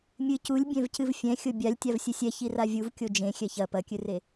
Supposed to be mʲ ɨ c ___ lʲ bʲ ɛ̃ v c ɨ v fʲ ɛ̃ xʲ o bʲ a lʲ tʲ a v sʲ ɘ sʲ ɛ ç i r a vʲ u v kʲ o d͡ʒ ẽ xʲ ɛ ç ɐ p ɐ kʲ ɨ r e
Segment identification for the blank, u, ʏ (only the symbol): u